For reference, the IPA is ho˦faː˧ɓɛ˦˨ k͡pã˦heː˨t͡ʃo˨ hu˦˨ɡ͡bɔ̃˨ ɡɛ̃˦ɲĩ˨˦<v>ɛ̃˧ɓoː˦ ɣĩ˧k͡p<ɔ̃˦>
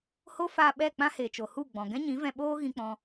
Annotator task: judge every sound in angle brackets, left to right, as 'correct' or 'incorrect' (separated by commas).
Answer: correct, incorrect